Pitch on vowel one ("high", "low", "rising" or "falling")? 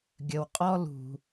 low